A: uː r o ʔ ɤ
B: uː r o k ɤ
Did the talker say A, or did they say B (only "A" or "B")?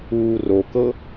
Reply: B